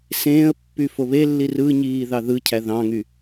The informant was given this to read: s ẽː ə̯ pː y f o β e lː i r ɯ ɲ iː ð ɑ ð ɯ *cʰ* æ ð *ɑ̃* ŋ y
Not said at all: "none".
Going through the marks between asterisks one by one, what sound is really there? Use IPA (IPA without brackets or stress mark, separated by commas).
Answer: cʰ, ɑ̃